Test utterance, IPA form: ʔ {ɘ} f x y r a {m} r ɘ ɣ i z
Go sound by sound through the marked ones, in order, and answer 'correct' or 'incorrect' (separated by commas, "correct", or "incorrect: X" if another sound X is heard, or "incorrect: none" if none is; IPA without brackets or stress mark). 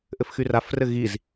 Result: correct, incorrect: f